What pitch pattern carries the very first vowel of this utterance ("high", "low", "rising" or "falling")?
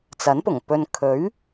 rising